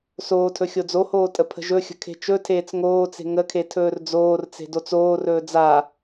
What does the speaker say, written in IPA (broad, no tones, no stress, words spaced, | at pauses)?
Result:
soːtʰɵ xʲod͡zohoː tʼəpʰə̤ʒɵxʲə̤ kʰe̤t͡ʃɵtʰeːt͡s ŋoːt͡se̤ ŋəkʰe tʰɵːrd͡zoːrt͡se̤ dot͡soːrɵː d͡za